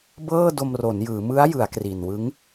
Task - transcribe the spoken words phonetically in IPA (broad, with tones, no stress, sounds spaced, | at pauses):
b ɤː˥˩ d o˧ m r o˩˦ n j ɯː˩˦ m ɯ˦˥ a̯ j ɯ˩˦ a̯ k r i˨˩ n w ɯ˦˥ ŋ